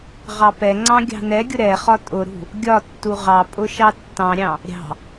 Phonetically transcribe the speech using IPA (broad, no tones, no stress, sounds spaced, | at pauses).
ʁ ɑ p ɛ ŋ͡ǀ ɑ̃ ɡʲ ɑ̤ n ɛ ɡʲ ʊ ɾ ɛ χ ɒ tʼ ʊ ɾ ṳ | ɡʲ ɒ tː u ʁ ɑ pʼ ʊ ʃ ɑ tː ɑ̃ ɾʲ ɑ̃ | ɾʲ ɑ̤